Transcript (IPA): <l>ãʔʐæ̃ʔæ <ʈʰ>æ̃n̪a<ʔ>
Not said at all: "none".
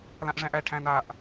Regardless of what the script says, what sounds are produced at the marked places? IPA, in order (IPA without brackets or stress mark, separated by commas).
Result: l, ʈʰ, ʔ